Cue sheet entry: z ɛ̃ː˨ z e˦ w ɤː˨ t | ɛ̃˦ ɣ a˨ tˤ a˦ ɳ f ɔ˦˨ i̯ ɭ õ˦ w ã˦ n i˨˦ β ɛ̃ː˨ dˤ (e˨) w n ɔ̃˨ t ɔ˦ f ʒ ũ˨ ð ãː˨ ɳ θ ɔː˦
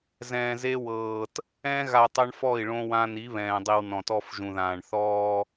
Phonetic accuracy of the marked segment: incorrect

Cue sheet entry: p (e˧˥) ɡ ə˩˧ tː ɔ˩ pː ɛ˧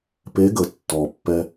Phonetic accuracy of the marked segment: correct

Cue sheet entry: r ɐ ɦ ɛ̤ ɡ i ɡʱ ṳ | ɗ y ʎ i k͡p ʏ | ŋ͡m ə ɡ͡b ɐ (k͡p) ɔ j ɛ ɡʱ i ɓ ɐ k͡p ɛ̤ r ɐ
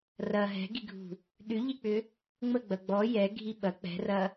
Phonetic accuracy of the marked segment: incorrect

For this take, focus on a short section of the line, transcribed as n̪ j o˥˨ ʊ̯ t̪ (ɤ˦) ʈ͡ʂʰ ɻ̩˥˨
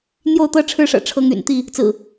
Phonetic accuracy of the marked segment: correct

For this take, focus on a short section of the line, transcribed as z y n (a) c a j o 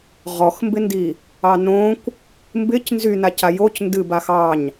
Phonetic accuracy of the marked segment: correct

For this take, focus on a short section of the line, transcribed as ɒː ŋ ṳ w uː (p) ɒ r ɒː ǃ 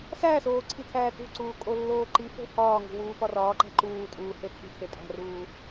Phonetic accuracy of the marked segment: correct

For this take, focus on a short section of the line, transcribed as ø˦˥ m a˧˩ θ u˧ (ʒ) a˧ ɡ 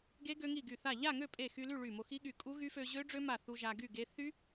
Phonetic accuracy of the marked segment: correct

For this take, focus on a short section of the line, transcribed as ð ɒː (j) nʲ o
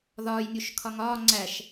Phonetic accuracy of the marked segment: correct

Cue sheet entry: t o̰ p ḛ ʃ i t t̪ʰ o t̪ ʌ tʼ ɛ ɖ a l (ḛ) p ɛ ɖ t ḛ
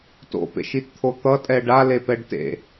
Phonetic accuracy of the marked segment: incorrect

